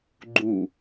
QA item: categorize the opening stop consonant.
click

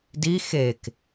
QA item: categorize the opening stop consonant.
plain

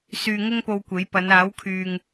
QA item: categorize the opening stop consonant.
plain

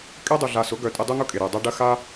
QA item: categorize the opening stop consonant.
ejective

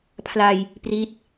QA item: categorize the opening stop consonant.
aspirated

